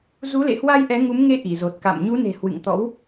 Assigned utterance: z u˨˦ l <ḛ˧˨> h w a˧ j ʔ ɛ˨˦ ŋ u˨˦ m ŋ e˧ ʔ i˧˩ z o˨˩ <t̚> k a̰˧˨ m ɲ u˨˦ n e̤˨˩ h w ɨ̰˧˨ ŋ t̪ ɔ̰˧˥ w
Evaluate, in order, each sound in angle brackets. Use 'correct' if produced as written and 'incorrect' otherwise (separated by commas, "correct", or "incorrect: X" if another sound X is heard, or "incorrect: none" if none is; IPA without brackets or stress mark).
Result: correct, correct